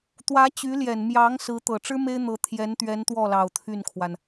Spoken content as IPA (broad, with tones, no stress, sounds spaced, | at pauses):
t̪ w ä˧˥ t͡ɕ y˧˥ l j ɛ˨˩ n m j ɑ˧˥ ŋ s ɹ̩˧˥ t̪ ɤ˨˩ ʈ͡ʂ ɻ̩˥ m e˥ ɪ̯ n̪ ɤ˧˥ t̪ʰ j ɛ˧˥ n t̪ ɥ ɛ˧˥ n t̪ w ɔ˥˩ l ɑ˨˩ ʊ̯ t̪ʰ y˥˩ n kʰ w a˩ n